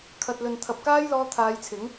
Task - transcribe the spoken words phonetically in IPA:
kʰɐ˨t̚lɵ˨nt̪ʰɐ˨p̚ kaː˥jlɔː˧t̪ʰaː˨˧jt͡sʰɪ˨˥ŋ

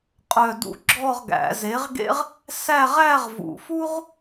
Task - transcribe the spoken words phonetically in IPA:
qʼœ˥˧dṵ˥ ɡ͡ǁɔ˥˧ʁɡæ̰˨˩˦ze˨˥ʁɡḛ˥ʁ | sæ˥˧ʁæ˥˧ʁvṵ˨˩˦fu˥ʁ

